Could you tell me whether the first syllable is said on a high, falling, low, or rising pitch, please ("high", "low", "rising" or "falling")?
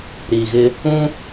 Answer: low